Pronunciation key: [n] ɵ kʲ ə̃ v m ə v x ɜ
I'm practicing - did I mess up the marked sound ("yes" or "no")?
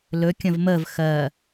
yes